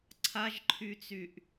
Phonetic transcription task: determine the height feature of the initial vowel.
low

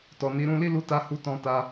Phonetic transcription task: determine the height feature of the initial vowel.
mid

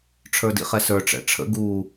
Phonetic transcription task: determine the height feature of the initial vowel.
mid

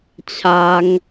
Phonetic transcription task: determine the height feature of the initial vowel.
low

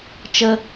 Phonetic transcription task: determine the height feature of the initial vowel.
mid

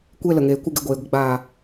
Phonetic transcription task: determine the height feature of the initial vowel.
mid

